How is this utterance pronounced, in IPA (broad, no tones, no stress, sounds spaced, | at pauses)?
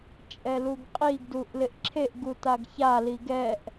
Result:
t͡ʃʼ ɛ l u ɡ qʼ i ɡ d u ʔ l ɪ ʔ ǁʰ e ʔ ɡ u t a ɡ ç a l i ɡ ɛ ʔ